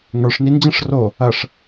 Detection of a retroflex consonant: present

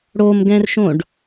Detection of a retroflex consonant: present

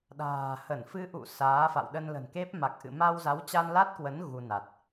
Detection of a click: absent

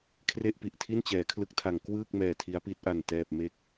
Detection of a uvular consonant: absent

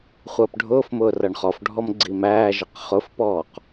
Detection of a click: present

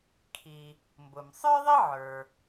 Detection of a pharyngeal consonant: present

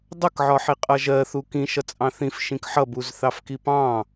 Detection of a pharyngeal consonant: present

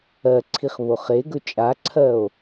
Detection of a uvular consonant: present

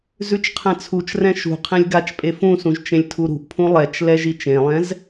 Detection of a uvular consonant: present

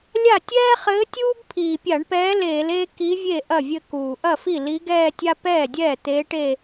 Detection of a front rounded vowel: absent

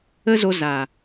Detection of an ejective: absent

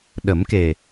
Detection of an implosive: present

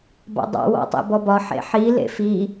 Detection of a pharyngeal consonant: present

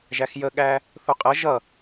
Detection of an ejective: present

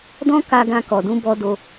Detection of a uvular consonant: absent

